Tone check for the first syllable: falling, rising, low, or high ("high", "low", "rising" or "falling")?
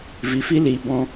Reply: low